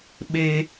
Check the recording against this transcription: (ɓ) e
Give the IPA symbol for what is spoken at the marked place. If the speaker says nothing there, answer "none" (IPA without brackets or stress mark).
ɓ